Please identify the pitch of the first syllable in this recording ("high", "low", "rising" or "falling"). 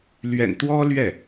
low